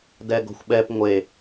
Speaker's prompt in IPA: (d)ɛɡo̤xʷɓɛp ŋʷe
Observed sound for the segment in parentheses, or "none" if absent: d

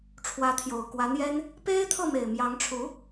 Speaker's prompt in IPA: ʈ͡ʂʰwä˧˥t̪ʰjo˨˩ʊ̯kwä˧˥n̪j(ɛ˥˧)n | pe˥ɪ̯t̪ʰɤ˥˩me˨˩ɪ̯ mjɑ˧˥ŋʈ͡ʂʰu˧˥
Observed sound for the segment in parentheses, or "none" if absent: ɛ˥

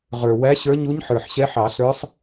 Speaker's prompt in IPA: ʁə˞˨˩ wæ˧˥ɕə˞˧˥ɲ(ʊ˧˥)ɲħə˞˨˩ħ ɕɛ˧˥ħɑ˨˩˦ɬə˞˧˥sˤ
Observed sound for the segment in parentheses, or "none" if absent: u˧˥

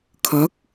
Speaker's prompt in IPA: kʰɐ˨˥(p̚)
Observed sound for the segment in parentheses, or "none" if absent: k̚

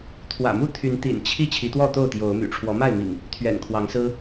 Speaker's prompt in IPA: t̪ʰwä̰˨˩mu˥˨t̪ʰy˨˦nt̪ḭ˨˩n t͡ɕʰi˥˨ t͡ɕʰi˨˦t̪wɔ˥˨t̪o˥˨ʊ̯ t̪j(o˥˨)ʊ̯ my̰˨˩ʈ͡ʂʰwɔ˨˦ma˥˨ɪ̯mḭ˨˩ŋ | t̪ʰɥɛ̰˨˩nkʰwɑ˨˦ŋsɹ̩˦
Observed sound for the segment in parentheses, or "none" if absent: o˨˦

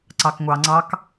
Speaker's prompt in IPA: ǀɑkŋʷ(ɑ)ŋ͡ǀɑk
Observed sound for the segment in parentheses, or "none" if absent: ɑ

